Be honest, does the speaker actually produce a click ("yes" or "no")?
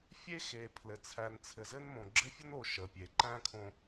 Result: yes